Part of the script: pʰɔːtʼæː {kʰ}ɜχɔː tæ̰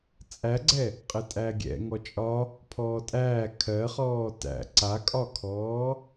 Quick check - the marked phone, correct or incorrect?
correct